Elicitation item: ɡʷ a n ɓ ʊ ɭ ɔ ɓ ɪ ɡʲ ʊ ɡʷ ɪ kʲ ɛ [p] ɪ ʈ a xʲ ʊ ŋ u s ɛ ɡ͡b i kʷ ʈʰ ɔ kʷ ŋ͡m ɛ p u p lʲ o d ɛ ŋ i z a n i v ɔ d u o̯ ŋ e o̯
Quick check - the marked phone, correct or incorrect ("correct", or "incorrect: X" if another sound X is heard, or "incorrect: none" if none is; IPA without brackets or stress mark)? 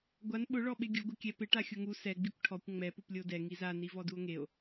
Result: correct